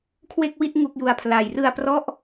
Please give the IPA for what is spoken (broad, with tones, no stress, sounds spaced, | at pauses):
kʰ w e˥˩ k̚ w i˥˩ t̚ ŋ u˥˩ k̚ j u˧ a̯ pʰ l a˨˩ j r ɯ˧ a̯ p r ɔ˦˥ ʔ